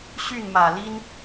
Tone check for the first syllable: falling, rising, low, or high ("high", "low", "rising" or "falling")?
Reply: falling